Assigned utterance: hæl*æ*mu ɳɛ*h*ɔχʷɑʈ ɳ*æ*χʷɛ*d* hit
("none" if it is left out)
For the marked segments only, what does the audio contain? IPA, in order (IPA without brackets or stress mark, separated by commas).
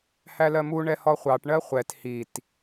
ɜ, h, ɜ, t